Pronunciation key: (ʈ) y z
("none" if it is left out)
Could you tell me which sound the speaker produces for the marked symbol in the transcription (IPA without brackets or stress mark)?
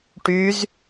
ʈ